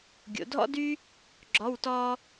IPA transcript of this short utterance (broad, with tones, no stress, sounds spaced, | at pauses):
ɡʲ o̰˩˧ dʱ ɔ̰˥ d y˥ | ɡ͡ǁ ɔ˧˥˧ w t ɔː˥